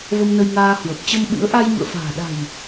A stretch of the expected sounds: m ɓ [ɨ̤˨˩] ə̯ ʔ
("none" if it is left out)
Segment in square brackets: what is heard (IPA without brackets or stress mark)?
ɨ̰˧˥